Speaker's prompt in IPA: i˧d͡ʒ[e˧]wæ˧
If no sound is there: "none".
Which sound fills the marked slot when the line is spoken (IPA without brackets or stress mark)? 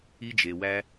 e˩